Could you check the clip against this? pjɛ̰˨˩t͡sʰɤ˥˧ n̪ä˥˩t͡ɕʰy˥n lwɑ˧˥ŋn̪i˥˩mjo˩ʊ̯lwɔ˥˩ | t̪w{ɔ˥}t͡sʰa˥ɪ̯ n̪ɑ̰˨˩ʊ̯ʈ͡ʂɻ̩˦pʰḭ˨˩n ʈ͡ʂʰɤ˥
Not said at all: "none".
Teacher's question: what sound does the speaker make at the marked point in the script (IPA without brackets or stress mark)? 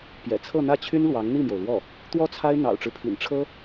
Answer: ɔ˥